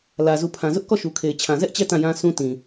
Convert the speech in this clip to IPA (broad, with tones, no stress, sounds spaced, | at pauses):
l ä˨ z u˨ pʰ ã˨ z ʊ˦ ʔ k ɔ˦˨ ʃ u˨ kʰ e˨ ɪ̯ t͡ɕʰ ã˨ z ɛ˦ ʔ t͡ɕ ɛ˦˨ t ã˦˨ j ã˦ sʰ ũ˦ t ĩ˨